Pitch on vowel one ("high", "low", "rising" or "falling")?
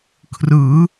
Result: rising